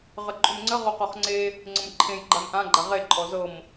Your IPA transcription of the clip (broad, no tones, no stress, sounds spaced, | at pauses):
ʁ ə ǃʼ ʏ m ŋ͡ǀ ə ʁ o q ɔ χ ŋ͡ǀ e | ŋ͡ǀ ə̃ m ǃʰ ẽ j ɡ͡ǃ a m ʔ ã ɡ͡ǃ a ʁ e ǃʼ ɔ z ɤ m